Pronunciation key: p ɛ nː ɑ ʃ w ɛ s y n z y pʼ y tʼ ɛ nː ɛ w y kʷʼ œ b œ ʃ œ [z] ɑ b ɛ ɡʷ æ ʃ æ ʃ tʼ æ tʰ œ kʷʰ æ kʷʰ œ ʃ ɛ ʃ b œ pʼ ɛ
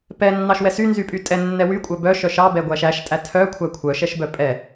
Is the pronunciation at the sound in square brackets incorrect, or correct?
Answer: incorrect